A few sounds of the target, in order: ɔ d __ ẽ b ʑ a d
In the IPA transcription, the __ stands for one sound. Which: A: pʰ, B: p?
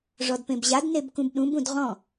B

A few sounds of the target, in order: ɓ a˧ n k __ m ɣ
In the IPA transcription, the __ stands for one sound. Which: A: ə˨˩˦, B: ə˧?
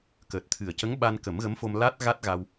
A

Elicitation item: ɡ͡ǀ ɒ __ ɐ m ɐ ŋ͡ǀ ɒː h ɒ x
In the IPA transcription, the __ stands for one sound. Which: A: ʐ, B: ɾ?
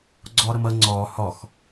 B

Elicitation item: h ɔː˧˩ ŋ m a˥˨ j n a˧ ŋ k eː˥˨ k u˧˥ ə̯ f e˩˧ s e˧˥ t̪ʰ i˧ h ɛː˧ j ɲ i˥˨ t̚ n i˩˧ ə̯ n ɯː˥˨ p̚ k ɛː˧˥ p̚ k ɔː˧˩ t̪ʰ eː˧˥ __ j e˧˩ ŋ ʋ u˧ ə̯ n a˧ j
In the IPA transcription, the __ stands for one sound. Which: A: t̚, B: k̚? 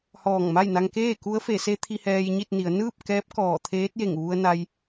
A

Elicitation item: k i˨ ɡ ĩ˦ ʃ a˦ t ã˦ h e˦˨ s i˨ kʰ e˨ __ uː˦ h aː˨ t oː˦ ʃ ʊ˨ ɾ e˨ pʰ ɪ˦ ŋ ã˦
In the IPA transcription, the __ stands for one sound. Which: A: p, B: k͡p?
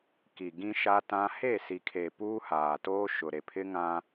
A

